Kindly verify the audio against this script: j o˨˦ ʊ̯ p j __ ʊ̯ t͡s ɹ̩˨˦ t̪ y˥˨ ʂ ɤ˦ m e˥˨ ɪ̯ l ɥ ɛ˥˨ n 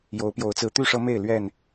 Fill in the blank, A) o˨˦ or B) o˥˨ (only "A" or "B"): A